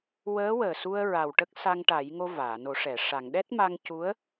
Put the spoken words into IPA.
wəː˧˥ wəː˨˩su˧ə̯ ɹa˨˩wʈə˦˥k̚ sa˧ŋʈa˨˩˦jŋo˧ vaː˨˩˨no˨˩˦ʂɛ˨˩˨ ʂa˨˩˨ŋɗɛ˦˥t̚ma˧ŋ cu˧˥ə̯

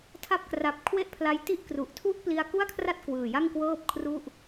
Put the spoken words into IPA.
tʰa˦˥p̚kra˨˩p̚ kʰwe˥˩ʔpʰla˦˥j ti˦˥ʔkru˨˩ʔtʰu˥˩ʔ pli˧a̯ku˥˩a̯kʰra˥˩t̚ kwɯː˨˩ja˥˩ŋkwɤː˥˩p̚kʰru˥˩ʔ

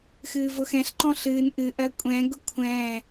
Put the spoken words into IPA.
xɨːvʊxɛ̃ɬǃɔ̃ ɬɨːn ʔɨʔɜ kʷʼɛ̃ɡʊ kʷʰɛ̃ː

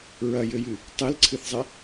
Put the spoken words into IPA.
ɹɐjɘjɨ | tˤelǀʰɨθzˤɛ

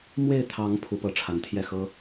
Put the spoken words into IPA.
mwe˥˩ɪ̯t̪ʰɑ˧˥ŋ pʰu˧˥pɤ˧˥ ʈ͡ʂʰa˧˥nt̪ʰjɛ˥˩xɤ˥

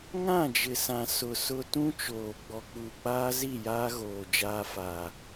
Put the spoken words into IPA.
ŋã˦˨d͡ʒɪ˨sã˨ sʊ˨ sʊ˦ tũ˦t͡ʃoː˨ ɡ͡bɔ˨k͡puː˨k͡paː˦zi˦˨ jaː˦ɣoː˨ d͡ʒaː˦faː˨

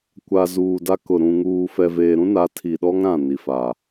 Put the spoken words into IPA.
kʷa˨ zuː˨da˦kʊ˨ ɾũ˨ŋuː˨ fɛ˨veː˨ɾũ˦ na˨˦tʰi˨ɗɔ˦ŋ ɾã˦˨ni˨fa˨

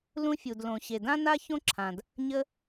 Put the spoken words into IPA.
lũ˥fʲu˩d lõ˩ɕe˩dã˥na˥ çõ˥ǁʰã˩d | ɲə˥

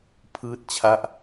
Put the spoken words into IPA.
pʰɯː˥˩t̚t͡ɕʰa˥˩ʔ

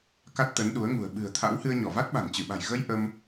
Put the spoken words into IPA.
ka˦˥t̚t̪ə˨˦nɗu˨˦ə̯ŋṳ˨˩ə̯ ɓɨ̤˨˩ə̯t̪ʰa̰˧˥w hɨ˧ə̯ɲɔ˧˩ va˦˥t̚ɓa̤˨˩nt͡ɕɨ˧˩ɓa̤˨˩j ɣə˧j ʔə˧m

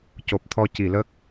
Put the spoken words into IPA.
co˨˩p̚t̪ʰɔ˧ ci˨˩˨lə˦˥k̚

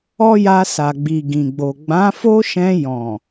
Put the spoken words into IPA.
ɔ˦ja˧sa˨ ɡ͡bi˨ɡĩ˨ɡ͡bo˨ ɡ͡bã˨˦fo˦ʃɛ̃˧ jɔ̃˨

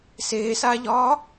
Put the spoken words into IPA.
seːsaːʎɒː

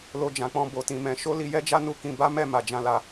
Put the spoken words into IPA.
lo˧d͡ʒã˨k͡pɔ̃˧ bo˧tĩ˧mɛ̃˧ ʃo˦li˧jɛ˦d͡ʒa˦ nu˦kĩ˧ ba˦mɛ˦˨ma˨d͡ʒã˨˦ la˧

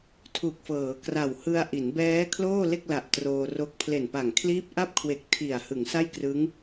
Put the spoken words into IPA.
tʰu˨˩k̚fɤː˩˦kra˨˩whɯ˧a̯ ʔi˩˦nbɛː˦˥ kʰloː˥˩le˥˩k̚la˨˩ʔ troː˧ro˦˥k̚ pʰle˨˩npa˨˩ŋ kʰliː˦˥p̚ʔa˥˩p̚kʰwe˨˩k̚ tʰi˨˩a̯ hɯ˩˦ŋsa˥˩jkrɯ˦˥ŋ

